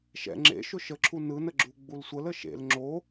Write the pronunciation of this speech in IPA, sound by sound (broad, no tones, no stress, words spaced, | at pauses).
ʃɛ̰ ŋ͡ǁḛ ʃʊʃəǁʰu nɯnə ɡ͡ǁuɡ͡bulsʷələ ʃḛl ŋ͡ǁo